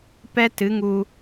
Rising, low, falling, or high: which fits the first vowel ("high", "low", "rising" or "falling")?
high